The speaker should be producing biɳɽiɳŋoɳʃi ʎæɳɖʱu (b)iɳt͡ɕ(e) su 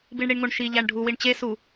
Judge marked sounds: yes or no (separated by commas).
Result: no, yes